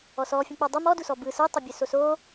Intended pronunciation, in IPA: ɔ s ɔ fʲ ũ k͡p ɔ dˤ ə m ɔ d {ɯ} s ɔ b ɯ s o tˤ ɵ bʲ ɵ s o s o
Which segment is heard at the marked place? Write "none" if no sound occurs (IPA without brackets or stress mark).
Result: u